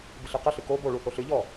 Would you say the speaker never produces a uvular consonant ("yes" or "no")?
no